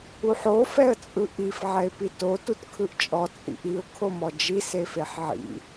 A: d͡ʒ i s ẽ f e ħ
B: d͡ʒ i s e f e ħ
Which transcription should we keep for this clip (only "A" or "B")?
B